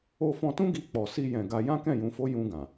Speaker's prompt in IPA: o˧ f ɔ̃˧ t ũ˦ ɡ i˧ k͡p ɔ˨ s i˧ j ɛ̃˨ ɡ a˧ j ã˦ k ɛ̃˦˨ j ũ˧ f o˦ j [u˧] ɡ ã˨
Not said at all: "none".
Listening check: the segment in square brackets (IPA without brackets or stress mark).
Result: ũ˧